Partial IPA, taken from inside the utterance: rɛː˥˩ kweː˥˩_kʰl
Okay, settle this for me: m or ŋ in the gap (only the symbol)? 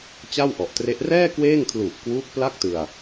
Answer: ŋ